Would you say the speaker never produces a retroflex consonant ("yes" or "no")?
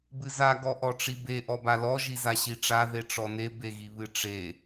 no